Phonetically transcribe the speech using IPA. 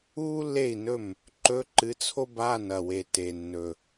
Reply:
uː˥ lː e˥˩ i̯ n ɵ˥˩ m | ǃ ɵ˧˥˧ ǃ ɨ˨˥ t͡sʰ o˥ b aː˧˥˧ n ɐ˨˩ w e˨˩ t e˨˩ nː ɵ˨˩

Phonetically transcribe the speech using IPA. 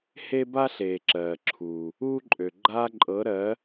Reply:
h e˥ b a˥ ɬ eː˨ ǁ ɜː˨ ǁʰ uː˨ | uː˥ ǃʼ ø˨ ɡ͡ǃ aː˥ ǃʼ ɤ˧˥ ɾ ɜ˧˥

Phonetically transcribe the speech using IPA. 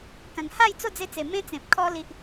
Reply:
k ã˨˩ ŋ h a˥˧ j t͡s o˥˧ d͡z e˧ t͡s e˨˩ m ẽ˦ t͡s ẽ˨ p̚ kʰ ɔ˧ l i˦ ʔ

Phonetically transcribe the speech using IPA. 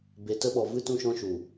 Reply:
b e˧ t ə˦ ɓ ɔ˧ v ɨ˦ t ũ˧ ʃ ɔ̃˧ ʃ u˨

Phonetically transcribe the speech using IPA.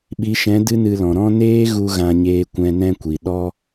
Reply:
ɓ i˨˦ ʃ ɛ̃˨˦ d ɨ˦ n ɨ˧ l ɔ̃˨ ɾ ɔ̃˦ n eː˦ ɣ u˧ ɣ ã˧ ɲ eː˧ kʷ ɛ̃˧ n ɛ̃˧ kʷ i˨ ɗ ɔ˦

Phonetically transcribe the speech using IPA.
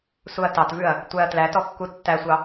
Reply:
s u ɐ̯ t ɑ t v ʉ ɐ̯ | tʷ æ ɐ̯ t l æ t ɔ kː u tː æ sʷ ɑ

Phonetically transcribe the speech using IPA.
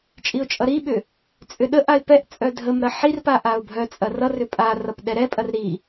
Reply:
t͡ʃʼ i ʊ̯ t͡ʃʼ ʌ ɾ i ɓ ʏ | t͡sʼ ʏ ɗ ə ʔ a ɪ̯ p ɛ ʔ t͡sʼ œ dʱ ə m ɾ ɐ ħ i r p a ʔ a ʊ̯ bʱ œ t͡sʼ ɐ r ʌ r ʏ pʼ a r ʌ p ɗ ɛ ɾ ɛ pʼ ɐ r ɾ i

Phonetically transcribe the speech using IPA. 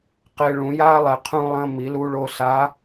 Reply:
q e˧ ɭ ũ˩˧ j a˥ lˠ ɛ˩ qʰ ũ˧ lˠ ɐ̃˧ m i˩˧ l u˧ ɭ o˧ s a˧˥

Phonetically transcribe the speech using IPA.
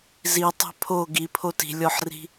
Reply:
z i tˤ ɛ̤ pʰ o ɡ i pʰ o t i̤ lʲ ɔ ħ r i̤

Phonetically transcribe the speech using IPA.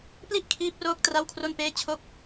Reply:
p l i˥˩ ʔ kʰ iː˦˥ p̚ r oː˦˥ k̚ t r a˥˩ w kʰ r o˥˩ n p eː˥˩ t͡ɕʰ o˥˩ k̚

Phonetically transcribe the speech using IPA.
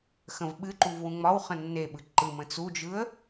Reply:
x ə̃ v ɓ ɨ ǃ u v w ũ ŋ͡m ɒ w χ ə̃ nː e ɓ ɯ ǃ ɯ m ə̃ t͡s u d͡ʒ ɯ ə̯

